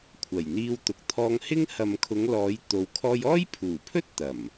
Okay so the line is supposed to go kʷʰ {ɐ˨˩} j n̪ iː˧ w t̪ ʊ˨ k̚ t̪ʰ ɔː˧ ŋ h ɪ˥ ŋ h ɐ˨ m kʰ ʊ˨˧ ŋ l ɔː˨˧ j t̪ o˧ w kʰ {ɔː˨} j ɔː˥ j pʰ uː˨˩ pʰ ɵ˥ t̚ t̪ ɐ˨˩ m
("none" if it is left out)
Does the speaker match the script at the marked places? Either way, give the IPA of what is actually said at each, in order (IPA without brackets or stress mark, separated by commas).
ɐ˨˩, ɔː˥